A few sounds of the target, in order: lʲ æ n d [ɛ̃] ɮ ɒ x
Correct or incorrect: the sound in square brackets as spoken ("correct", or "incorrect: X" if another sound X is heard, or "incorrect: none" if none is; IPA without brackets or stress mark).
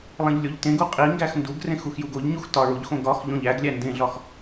incorrect: ẽ